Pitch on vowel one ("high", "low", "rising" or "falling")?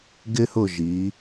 high